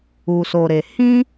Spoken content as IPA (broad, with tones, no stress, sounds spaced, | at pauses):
u˧ s o˧ ɾ e˧ h ĩ˦